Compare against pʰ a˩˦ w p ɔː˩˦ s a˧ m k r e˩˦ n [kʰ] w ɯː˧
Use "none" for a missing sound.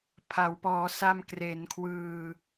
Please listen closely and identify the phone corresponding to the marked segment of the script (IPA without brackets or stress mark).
kʰ